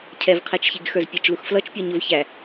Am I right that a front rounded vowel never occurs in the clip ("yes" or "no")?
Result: yes